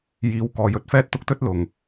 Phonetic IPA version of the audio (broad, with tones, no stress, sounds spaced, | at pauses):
j iː˨ w k ɔː˨ j ɵ˧ t̚ f ɛː˥ t̚ t̪ ʊ˥ k̚ t̪ ɵ˥ t̚ l ʊ˨˩ ŋ